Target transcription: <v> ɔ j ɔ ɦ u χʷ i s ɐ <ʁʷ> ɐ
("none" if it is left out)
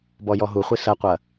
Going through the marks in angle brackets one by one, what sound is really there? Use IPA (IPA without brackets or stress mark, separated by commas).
b, qʷ